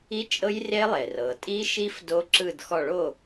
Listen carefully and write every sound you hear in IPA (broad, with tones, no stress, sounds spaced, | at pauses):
i˦˥ t͡ʃʼ ɤ˦˥ j r e˦˥ lˠ e˩ r ɤ˩ tʼ i˦˥ ʃ i˦˥ f d o˦˥ ǁ ɯ˦˨ d x ɔ˦˨ ɭ o˦˨